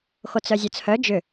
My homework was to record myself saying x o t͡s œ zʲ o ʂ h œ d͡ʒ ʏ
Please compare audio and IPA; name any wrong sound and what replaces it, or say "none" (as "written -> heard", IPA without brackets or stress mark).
ʂ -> t͡s